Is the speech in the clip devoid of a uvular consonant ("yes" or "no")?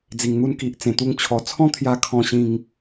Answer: yes